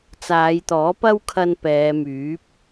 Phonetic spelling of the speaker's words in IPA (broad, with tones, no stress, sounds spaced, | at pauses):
t͡s aː˨˧ j t̪ ɔː˨˥ p ɐ˥ w kʰ ɐ˧ n p ɛː˨˧ m yː˨˥ p̚